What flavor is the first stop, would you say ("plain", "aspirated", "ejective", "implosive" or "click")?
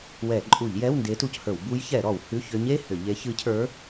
click